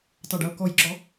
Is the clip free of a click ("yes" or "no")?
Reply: no